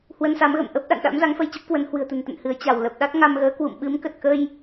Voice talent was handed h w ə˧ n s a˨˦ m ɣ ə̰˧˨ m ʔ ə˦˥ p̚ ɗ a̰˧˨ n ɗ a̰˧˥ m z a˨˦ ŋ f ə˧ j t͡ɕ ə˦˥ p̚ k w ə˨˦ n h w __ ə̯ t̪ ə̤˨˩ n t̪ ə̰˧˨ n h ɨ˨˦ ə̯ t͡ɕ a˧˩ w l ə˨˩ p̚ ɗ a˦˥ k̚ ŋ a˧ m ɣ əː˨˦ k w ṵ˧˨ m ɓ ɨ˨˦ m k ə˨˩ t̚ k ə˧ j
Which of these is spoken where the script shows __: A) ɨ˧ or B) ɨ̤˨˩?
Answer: B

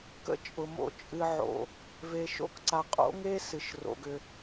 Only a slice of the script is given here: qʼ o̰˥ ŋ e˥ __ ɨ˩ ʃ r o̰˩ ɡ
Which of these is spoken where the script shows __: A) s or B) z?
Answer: A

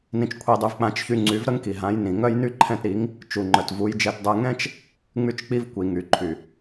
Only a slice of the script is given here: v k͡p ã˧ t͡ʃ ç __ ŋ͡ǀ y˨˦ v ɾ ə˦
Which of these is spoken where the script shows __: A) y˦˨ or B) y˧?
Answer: B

